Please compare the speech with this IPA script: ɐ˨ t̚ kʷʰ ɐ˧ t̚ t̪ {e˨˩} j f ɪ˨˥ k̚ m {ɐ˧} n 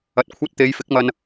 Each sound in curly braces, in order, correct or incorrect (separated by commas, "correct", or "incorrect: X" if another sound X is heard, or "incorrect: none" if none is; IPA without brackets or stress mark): incorrect: e˨˧, correct